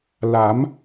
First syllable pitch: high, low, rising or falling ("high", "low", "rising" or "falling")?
rising